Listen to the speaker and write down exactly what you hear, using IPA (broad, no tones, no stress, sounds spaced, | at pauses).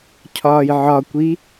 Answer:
cʰ ɒː j ʕ ɒ kʷ i